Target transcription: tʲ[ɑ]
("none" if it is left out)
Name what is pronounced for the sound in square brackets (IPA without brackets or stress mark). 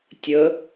ə